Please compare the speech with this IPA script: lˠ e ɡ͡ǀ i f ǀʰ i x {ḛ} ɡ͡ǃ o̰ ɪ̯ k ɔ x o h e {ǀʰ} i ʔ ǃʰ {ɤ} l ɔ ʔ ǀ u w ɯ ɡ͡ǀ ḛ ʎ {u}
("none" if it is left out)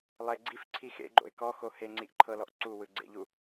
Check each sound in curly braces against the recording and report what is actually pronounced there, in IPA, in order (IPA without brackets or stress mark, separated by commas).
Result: ḛ, ŋ͡ǀ, ɤ, u